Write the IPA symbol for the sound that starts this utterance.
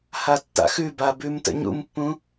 h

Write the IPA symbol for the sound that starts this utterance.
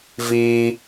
v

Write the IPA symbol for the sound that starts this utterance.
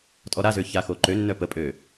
tʼ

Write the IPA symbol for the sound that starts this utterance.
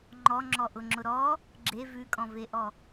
ŋ͡ǃ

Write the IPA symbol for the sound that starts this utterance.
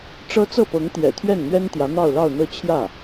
ʈ͡ʂ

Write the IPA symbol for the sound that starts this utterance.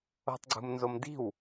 o̤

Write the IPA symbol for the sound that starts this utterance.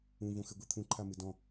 ũ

